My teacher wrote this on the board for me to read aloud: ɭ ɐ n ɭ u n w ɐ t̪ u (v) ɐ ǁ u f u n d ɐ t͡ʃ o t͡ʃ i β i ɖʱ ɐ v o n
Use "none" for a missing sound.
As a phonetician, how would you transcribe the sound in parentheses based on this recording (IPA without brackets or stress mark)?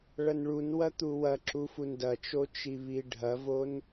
w